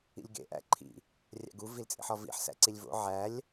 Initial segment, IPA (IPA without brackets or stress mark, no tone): ḭ